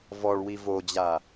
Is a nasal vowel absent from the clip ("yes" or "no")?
yes